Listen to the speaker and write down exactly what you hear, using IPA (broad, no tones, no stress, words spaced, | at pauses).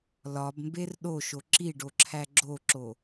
lɒbmber ɗoʃo ǁiɖoǁʰæ ɡ͡ǁoǁo